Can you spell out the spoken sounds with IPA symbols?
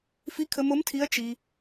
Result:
fi˧˥kʰə˧mo˧˥mtʰi˧˥ɐ̯ t͡ʃi˧

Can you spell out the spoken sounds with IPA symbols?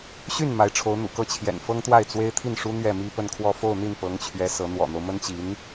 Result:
ɕy˥˩n ma˧˥ɪ̯ʈ͡ʂʰo˧˥ʊ̯n̪ṵ˨˩kɤ˥˩ t͡ɕʰjɛ̰˨˩nfɤ˥ŋt̪wa˥˩ɪ̯ t͡swe˥ɪ̯t̪ʰi˥˩nʂu˥ n̪ɥɛ˥˩mi˥pə˥˧nkʰwɔ˥˧ fo˥˧ʊ̯n̪i˥˩npɤ˧˥ŋt͡ɕʰɥɛ˧˥ sɤ˧˥ n̪wɔ̰˨˩n̪o˦ʊ̯mə˥n t͡ɕi˧˥n

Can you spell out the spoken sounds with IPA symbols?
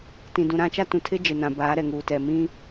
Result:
tĩ˨dũ˨ɾã˦t͡ʃa˦ tũ˨tʰɪ˦ d͡ʒɪ˨nã˨ baː˨˦ɾɛ˨ŋuː˨tɛ˨ mĩ˦

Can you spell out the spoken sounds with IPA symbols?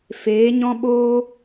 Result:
feː˨˦ɲɔ̃˦ɓoː˦

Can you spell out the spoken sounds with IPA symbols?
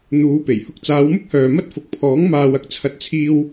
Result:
n̪uː˨˧pe˨˩j hʊ˧k̚t͡saː˨˧wmʊ˥k̚hœː˨ mɐ˥t̚ fʊ˨k̚pʰɔː˨˥ŋ maː˨wɐ˧k̚t͡sʰɐ˨˥t̚t͡sʰiː˧w

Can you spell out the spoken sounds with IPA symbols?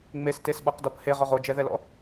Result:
ŋ͡mestesɓɔqdɔp heʁɔʁ od͡ʒɛðɛlɔ̰

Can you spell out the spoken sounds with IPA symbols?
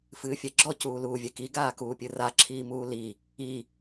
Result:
fɨːfʲɛɡ͡ǁɔ cuːluːvʲɛki ɡaːkuːpʲɨra ǁʰiːmuːli | i

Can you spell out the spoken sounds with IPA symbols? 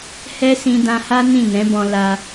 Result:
hɛ˦sĩ˧ dã˧ha˦ nĩ˦˨nɛ̃˨˦bɔ̃˧ la˧

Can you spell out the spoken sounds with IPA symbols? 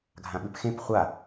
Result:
ɡʱãɓʉpxẽp χʷa

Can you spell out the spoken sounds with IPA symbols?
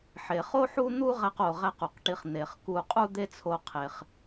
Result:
ħe˩χo˥ħu˥ n̪u˥ ʁæ˧qo˩ʁæ˧q u˩qʈi˧χ n̪e˩χ ku˧qʼu˥d̪e˥t͡sʰo˧ qʰe˩χ

